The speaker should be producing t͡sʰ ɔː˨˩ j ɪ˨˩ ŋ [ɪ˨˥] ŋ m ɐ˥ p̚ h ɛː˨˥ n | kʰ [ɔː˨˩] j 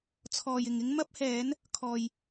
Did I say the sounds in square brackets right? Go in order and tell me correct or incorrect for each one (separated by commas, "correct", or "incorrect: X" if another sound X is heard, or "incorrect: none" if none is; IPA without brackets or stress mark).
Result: incorrect: ɪ˥, correct